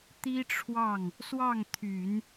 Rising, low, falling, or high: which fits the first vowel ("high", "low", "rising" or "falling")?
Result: high